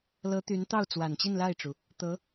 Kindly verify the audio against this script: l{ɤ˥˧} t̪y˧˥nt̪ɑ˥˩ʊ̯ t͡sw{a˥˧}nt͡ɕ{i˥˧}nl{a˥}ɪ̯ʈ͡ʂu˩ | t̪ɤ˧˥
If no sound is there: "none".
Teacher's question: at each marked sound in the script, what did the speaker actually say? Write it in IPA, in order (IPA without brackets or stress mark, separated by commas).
ɤ˧˥, a˨˩, i˥˧, a˥˩